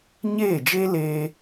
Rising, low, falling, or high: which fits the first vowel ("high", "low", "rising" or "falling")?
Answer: falling